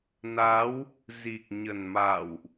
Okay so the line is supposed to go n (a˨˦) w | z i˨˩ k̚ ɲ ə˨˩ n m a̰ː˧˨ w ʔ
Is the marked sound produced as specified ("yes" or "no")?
yes